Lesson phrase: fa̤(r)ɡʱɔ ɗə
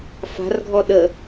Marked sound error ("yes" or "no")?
no